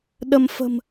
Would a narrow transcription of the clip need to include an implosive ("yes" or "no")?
yes